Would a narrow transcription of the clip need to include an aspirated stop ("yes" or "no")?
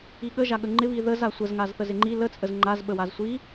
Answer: no